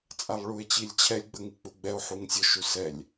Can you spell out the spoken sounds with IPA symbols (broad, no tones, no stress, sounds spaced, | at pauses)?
t͡sʼ a lˠ ɭ u e̯ t͡ɕ i lʲ t͡ɕʰ ɛ lʲ ɡ͡b ə ŋ i k͡p u ɡ͡b ɛ o̯ ħ u ŋ sʲ ʊ ʃ u s ɛ lʲ